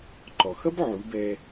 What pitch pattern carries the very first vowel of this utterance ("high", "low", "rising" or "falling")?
low